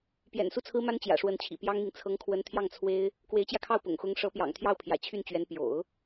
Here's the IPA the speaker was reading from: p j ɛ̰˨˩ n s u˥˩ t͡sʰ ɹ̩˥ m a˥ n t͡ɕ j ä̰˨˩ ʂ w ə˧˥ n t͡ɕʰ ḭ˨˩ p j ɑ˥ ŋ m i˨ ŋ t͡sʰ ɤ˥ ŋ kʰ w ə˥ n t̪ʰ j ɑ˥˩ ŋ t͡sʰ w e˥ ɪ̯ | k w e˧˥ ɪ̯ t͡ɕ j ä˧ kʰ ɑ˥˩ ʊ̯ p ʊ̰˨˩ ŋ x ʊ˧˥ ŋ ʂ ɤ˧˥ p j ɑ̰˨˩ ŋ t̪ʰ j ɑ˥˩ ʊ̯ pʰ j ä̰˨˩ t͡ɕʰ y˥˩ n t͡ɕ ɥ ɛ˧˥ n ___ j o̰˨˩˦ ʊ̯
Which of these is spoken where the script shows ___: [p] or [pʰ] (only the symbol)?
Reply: p